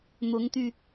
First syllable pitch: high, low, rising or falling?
rising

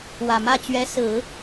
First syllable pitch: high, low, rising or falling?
low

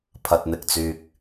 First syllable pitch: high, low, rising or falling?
low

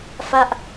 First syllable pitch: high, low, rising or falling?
falling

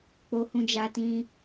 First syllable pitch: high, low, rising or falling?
high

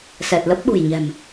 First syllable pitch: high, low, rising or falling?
low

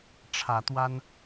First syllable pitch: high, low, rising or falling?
rising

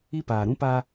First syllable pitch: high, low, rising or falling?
high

